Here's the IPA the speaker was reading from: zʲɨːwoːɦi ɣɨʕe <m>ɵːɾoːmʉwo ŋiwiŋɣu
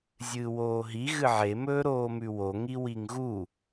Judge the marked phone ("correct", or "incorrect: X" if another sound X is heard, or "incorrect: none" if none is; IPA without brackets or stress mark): correct